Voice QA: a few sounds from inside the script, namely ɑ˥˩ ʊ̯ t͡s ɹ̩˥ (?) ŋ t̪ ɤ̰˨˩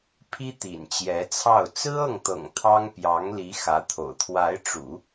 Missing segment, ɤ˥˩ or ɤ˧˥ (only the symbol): ɤ˥˩